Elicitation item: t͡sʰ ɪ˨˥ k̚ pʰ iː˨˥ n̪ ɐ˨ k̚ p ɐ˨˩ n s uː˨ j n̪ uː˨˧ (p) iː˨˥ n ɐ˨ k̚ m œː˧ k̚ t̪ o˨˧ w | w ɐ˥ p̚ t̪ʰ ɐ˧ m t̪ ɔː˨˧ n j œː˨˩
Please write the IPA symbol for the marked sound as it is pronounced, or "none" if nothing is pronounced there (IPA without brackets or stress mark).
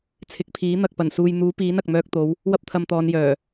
p